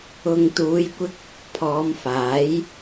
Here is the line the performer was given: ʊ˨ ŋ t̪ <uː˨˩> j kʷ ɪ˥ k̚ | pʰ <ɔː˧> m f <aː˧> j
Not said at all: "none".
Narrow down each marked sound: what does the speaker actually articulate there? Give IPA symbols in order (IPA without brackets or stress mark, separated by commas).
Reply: uː˨˧, ɔː˨˧, aː˨˥